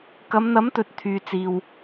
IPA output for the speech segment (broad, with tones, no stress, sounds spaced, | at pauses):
k ɐ˨˧ m n̪ ɐ˨˥ m t̪ ɵ˨ t̚ t̪ʰ yː˨ t͡s iː˨ w